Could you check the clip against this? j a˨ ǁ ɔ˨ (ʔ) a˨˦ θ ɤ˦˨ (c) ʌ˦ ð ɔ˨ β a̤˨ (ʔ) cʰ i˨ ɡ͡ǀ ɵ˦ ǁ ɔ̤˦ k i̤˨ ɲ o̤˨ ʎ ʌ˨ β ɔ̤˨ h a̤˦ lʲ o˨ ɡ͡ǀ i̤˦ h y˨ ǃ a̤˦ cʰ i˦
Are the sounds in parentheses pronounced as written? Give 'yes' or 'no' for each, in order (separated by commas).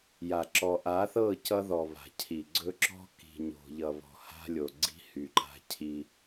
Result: yes, yes, no